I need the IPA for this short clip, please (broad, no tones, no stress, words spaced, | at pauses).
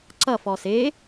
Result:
ǀʌfɔ se